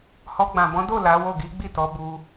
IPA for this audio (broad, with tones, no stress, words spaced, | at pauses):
hɔ˧ ɡ͡bã˨bɔ̃˨˦do˦˨ la˨˦wo˦˨ ɡi˨˦ɡ͡bi˦˨tɔ˨˦ bu˧